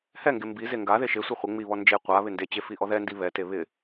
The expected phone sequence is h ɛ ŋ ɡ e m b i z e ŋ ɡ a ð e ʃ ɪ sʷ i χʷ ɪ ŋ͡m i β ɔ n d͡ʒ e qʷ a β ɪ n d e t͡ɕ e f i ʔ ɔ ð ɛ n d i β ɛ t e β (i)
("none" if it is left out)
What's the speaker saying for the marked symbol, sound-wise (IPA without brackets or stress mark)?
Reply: ɪ